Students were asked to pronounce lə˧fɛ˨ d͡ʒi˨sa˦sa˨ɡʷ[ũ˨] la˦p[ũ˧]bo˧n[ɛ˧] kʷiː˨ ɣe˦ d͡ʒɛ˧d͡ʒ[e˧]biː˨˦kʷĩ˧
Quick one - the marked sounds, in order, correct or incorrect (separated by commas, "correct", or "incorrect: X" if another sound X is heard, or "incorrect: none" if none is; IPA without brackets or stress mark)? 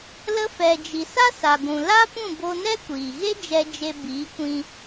correct, incorrect: ũ˦˨, incorrect: ɛ˦, correct